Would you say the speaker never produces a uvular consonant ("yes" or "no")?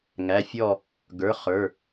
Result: no